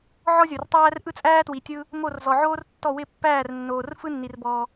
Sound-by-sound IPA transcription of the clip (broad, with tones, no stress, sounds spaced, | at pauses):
ʕ ɔ˥ zʲ o˨ r tˤ æː˥ r ʔ ɯ˥ t͡sʼ æː˥ t w i˨ tʲ ɯ˥ | m o˥˩ r z ɔ˨ ʕ oː˥ r tː ɔ˥˩ w ɪ˥˩ pː æː˥˩ r nː oː˨ r f ɯ˥ nː i˨ r b ɔː˨